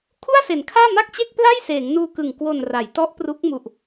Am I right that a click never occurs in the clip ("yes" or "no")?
yes